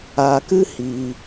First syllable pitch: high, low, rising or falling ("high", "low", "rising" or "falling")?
low